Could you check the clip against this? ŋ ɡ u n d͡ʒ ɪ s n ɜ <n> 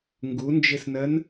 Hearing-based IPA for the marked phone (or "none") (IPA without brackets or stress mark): n